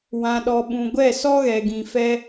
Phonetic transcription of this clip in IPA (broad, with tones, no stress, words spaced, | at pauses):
wã˨ɗɔ˨ɓũ˨ ɡʷɛ˦˨sɔ˦ɣɛ˨ɡĩ˨ fɛ˧